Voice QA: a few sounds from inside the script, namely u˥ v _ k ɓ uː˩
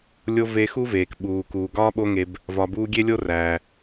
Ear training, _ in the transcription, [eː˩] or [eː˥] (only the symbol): eː˩